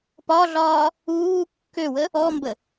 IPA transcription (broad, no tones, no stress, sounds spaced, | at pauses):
p ɒ ɮ ɒː | uː kː ø w ə | ɔ m b ə